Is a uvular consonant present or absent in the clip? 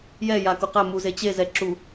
present